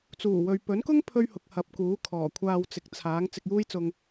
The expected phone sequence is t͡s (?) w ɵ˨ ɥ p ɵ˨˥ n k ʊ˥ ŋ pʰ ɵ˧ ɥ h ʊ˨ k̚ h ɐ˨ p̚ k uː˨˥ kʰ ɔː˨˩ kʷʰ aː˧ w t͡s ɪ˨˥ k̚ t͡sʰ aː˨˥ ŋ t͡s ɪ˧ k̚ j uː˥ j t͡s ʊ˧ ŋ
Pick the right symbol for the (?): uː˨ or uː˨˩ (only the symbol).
uː˨˩